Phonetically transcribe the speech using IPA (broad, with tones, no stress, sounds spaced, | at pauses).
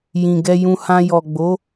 j ĩ˨ ɡ ɛ˧ j ũ˧ h ã˧ j ɔ˨ ɡ͡b o˨˦